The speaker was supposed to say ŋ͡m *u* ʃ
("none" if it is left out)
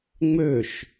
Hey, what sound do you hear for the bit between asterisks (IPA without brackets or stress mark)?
ø